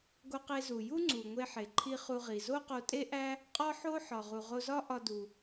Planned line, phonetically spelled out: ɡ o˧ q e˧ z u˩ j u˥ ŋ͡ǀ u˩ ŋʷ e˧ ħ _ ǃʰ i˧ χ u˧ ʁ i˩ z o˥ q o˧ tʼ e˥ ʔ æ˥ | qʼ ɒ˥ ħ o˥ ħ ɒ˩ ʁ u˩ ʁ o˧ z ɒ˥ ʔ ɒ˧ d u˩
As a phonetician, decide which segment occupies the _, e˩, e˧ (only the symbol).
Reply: e˩